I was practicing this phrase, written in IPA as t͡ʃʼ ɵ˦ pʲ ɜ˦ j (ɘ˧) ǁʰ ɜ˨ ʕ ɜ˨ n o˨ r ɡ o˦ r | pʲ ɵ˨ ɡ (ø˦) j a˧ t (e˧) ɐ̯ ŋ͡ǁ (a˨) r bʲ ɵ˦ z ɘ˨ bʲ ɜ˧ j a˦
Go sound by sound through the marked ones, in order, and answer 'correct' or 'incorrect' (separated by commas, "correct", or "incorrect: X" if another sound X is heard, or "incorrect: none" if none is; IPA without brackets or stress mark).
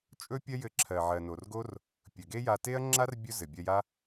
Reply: correct, incorrect: e˦, incorrect: e˦, incorrect: a˦